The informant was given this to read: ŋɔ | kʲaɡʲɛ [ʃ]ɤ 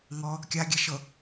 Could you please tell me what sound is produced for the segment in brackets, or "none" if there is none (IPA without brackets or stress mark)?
ʃ